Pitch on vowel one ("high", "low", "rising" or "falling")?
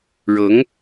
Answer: rising